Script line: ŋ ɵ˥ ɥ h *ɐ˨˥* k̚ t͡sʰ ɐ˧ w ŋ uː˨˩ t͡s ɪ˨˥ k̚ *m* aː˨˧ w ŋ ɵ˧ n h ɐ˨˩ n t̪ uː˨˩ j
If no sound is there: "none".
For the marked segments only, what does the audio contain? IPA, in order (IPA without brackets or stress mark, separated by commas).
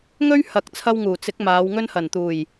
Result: ɐ˨˥, m